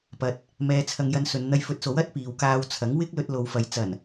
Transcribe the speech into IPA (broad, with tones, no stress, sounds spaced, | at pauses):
p ɐ˨ t̚ | m ɛː˧ t͡sʰ ɐ˧ ŋ j ɐ˧ n s ɵ˨˧ n n̪ ɐ˧ j f ɵ˨˥ t̚ s o˨˥ w ɐ˥ t̚ p iː˨ w k aː˧ w t͡sʰ ɐ˨˥ ŋ w ɪ˥ k̚ l ɵ˧ t̚ l o˨˧ w f ɐ˨ j t͡s ɐ˨˩ n